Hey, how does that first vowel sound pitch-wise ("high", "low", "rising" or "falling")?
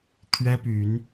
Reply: high